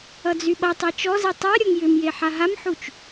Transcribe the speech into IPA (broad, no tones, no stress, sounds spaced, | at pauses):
ʌ d͡z y ɓ ʌ tˤ i t͡ʃ ɔ z i tˤ a ɾʲ ɔ ŋ j ʏ m j e ħ a ɦ a m ħ u t͡ʃ